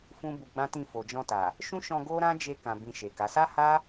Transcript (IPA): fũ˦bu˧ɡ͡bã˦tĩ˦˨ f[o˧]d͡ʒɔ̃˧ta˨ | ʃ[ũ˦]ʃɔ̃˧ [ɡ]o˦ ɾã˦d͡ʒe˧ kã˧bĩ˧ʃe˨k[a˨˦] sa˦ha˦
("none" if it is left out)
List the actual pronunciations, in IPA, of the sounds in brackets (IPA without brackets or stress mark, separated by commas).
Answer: o˨, ũ˦, ɡ, a˨˦